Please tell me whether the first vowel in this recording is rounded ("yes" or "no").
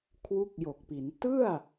yes